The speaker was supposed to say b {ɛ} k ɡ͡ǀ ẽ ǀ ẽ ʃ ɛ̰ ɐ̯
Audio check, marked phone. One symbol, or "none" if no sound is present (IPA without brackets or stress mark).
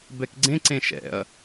ɛ